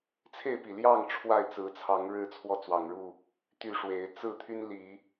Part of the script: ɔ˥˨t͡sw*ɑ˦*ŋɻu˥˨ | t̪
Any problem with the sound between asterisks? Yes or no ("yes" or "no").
yes